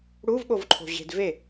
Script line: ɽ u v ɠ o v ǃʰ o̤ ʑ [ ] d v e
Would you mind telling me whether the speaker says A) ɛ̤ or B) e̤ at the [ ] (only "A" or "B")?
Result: B